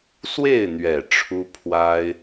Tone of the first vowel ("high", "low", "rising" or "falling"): falling